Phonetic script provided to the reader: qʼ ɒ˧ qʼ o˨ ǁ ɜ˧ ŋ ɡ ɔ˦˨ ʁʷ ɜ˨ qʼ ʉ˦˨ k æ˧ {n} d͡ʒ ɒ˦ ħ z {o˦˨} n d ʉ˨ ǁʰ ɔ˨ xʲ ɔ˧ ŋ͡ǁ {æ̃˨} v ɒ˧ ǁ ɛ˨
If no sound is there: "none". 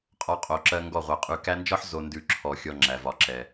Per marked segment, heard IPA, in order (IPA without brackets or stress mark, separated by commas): n, o˨, æ˨